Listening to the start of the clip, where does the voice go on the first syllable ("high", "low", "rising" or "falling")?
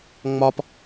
high